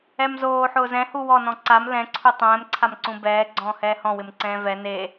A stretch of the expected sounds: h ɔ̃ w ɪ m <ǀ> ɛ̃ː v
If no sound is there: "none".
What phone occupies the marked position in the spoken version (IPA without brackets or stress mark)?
ǀ